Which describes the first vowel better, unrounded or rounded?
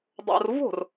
rounded